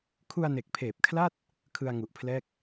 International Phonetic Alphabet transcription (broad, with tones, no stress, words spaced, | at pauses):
kʰu˧a̯ne˨˩k̚pʰeː˨˩p̚kʰla˥˩t̚ | kʰɯ˧a̯ŋu˨˩ʔpʰlɛː˥˩k̚